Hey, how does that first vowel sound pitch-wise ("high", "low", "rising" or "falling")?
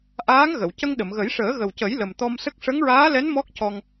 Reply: rising